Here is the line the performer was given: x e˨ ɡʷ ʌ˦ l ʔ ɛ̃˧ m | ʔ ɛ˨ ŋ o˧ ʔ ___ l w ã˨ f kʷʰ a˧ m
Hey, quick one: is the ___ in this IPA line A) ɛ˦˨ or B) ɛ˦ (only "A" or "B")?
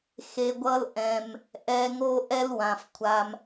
B